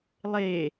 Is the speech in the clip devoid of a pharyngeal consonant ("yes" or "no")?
yes